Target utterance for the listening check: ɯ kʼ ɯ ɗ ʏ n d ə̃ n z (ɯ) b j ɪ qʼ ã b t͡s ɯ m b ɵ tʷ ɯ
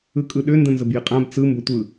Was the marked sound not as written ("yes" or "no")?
yes